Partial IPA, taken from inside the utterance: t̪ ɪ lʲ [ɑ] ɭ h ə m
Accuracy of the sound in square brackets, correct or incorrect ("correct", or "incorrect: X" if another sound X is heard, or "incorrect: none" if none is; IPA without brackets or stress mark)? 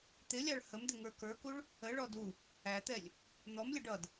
correct